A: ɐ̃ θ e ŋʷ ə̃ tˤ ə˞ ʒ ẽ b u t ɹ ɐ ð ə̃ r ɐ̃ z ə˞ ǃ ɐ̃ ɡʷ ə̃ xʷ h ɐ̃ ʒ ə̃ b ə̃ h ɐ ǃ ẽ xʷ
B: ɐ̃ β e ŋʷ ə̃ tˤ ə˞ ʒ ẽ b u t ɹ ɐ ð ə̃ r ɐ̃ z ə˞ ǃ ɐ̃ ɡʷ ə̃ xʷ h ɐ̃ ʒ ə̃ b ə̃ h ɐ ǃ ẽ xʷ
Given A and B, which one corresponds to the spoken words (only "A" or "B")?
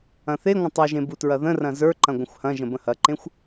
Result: A